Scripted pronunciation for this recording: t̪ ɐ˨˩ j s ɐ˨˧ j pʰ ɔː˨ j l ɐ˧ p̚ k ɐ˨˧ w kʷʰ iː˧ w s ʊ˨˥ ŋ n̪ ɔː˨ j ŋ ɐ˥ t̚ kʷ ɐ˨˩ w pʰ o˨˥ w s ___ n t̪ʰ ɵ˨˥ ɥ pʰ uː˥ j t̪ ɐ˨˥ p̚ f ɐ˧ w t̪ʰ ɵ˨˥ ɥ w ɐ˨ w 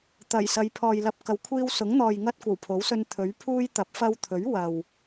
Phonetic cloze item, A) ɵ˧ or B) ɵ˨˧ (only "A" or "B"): A